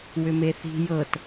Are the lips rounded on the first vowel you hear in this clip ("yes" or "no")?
yes